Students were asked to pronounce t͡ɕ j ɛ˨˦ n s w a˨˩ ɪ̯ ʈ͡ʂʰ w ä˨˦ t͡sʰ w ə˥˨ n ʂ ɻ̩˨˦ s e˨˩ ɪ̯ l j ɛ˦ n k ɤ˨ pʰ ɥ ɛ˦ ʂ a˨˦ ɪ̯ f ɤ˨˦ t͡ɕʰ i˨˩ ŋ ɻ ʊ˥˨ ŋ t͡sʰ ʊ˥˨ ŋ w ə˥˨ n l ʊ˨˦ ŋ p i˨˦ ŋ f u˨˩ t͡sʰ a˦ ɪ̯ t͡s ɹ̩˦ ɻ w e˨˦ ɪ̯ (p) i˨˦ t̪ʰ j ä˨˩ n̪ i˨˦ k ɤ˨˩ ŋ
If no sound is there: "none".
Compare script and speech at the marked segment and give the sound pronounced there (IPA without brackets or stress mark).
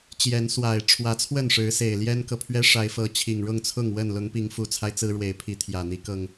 pʰ